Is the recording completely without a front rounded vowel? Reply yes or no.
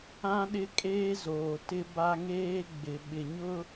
yes